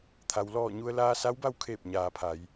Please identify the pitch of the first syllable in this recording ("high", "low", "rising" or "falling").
low